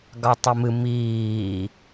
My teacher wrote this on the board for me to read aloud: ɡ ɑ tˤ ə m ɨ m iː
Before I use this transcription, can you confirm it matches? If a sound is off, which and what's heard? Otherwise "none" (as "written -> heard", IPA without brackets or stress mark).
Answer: none